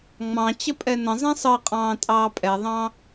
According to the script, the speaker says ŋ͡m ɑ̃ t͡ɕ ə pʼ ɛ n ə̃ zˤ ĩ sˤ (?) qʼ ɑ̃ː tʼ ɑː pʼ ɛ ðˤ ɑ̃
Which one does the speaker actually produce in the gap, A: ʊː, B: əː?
B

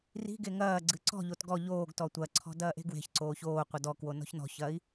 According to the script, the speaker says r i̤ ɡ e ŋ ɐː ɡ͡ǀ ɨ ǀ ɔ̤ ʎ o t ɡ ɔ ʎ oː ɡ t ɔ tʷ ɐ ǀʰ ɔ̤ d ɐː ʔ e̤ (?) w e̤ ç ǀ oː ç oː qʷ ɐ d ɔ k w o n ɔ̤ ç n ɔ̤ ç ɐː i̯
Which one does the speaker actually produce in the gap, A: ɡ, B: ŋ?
A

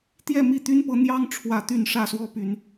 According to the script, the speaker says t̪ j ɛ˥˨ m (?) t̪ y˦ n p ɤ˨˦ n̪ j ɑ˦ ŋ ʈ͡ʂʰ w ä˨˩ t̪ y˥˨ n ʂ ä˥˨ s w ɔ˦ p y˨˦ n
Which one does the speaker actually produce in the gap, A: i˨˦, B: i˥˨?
B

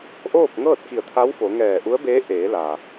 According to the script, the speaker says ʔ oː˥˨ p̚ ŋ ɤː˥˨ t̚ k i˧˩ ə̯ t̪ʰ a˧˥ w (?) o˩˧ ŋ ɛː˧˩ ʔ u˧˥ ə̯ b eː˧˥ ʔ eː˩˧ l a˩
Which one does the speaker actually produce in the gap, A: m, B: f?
B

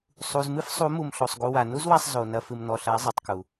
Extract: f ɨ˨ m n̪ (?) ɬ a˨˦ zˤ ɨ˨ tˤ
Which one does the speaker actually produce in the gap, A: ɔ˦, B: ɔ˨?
B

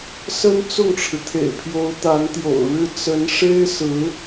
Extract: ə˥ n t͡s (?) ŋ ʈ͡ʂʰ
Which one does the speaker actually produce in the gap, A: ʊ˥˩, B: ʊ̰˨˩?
A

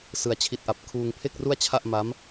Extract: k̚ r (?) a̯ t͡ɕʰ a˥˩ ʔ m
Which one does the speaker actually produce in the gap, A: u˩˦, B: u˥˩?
B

